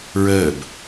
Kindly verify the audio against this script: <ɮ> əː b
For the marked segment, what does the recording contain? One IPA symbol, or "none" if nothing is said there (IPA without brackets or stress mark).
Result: ɹ